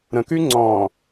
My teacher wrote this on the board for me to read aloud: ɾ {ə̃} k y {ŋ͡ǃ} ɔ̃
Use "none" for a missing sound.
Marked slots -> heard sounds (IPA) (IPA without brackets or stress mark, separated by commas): ə̃, ŋ͡ǀ